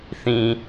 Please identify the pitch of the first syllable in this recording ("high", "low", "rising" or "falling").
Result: low